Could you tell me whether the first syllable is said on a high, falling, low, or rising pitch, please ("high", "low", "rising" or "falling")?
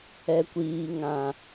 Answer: low